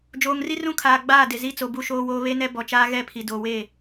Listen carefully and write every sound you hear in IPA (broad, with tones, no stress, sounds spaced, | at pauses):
d͡ʒ oː˨ ŋ r i˦ r ũ˦ kʰ aː˨ ɡ͡b aː˦˨ d ɪ˨ z i˦ t͡s o˨ b u˦ ʃ oː˦ w oː˦ β e˦ n ɛ˦ b ɔ˨ t͡ʃ aː˦ ɣ ɛ˦˨ pʰ i˨ d oː˨ w eː˦˨